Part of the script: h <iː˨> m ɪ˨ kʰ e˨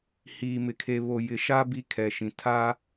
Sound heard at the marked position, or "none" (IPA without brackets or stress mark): iː˨